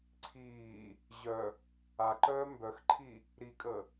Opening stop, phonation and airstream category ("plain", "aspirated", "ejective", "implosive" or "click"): click